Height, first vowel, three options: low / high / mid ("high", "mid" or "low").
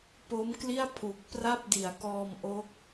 mid